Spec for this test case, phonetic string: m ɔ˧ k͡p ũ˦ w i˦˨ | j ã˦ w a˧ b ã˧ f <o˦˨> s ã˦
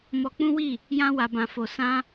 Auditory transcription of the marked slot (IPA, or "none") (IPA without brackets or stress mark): o˧